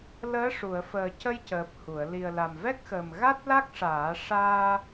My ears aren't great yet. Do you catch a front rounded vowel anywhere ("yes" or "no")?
no